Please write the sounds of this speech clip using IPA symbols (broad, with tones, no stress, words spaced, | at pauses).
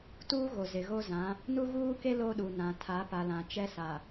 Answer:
tuː˦ɣo˨ zɪ˨ɣo˦zã˨˦ | nu˦ɣuː˦ke˦ lo˦ɗu˨nã˨ tʰa˨˦pa˨ lã˨t͡ʃɛ˦sa˨